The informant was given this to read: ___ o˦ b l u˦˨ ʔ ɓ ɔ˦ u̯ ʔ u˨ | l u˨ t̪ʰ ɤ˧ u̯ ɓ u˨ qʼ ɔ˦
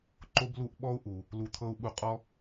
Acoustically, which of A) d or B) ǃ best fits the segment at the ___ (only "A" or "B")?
B